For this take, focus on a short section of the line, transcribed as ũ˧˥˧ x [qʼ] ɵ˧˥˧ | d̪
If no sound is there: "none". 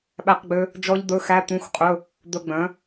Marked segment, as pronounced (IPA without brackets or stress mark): qʼ